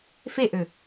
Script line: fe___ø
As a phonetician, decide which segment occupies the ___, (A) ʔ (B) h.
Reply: A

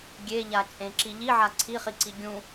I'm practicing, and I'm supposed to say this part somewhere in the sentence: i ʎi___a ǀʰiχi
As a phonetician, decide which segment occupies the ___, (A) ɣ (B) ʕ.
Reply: B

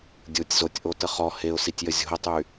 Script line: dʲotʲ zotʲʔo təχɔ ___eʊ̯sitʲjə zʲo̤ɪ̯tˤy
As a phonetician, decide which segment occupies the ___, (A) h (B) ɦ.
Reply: A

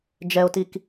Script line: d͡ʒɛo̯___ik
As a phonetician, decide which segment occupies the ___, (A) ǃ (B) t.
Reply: B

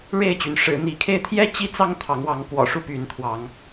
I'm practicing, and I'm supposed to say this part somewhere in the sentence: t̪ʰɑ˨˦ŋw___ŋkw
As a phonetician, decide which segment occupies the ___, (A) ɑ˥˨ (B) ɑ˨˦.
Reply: B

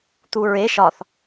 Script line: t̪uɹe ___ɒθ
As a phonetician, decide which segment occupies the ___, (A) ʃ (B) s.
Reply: A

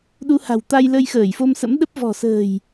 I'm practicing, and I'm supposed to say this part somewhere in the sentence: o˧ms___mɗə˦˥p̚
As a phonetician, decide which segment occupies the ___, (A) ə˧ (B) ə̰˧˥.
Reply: B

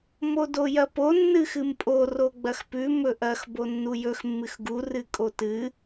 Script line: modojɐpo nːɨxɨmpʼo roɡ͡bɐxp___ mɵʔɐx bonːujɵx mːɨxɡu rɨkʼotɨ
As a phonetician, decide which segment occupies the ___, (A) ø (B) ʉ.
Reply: B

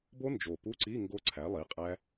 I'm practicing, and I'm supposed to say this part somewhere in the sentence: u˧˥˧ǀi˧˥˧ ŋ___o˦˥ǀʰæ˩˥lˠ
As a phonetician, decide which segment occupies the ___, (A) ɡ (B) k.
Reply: A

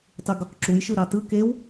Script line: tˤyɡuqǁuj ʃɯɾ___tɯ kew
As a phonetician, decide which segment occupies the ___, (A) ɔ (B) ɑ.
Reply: B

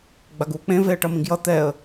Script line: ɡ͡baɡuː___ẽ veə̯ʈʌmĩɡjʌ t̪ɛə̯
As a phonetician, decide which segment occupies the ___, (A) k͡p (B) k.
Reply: A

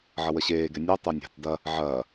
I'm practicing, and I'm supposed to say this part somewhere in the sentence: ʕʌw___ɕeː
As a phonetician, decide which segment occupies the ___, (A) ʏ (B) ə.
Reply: B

